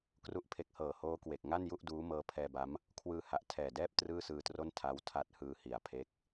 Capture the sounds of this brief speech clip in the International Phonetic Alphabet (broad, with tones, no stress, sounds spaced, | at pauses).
k r u˥˩ ʔ pʰ e˦˥ k̚ h ɤː˨˩ h oː˦˥ k w e˨˩ k̚ ŋ a˥˩ n j u˥˩ ʔ d uː˦˥ m ɤː˦˥ pʰ ɛː˧ b a˦˥ m | kʰ w ɯː˧ h a˨˩ ʔ tʰ ɛː˨˩ d ɛː˥˩ p̚ t r ɯː˥˩ s ɯː˧ t r o˥˩ n tʰ a˦˥ w tʰ a˦˥ t̚ h ɯː˧ h i˨˩ a̯ pʰ e˦˥ k̚